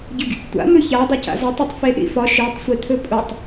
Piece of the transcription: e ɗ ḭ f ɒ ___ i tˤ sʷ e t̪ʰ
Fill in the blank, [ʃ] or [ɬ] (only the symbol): ʃ